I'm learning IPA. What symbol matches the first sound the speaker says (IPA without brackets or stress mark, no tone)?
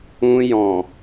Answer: ũ